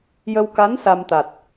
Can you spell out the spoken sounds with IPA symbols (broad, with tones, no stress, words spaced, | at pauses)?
jə˧wka˧˥n sa˧mt̪a˨˩t̚